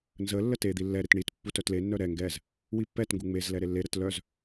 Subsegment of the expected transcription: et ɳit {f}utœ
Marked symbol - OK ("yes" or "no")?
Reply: no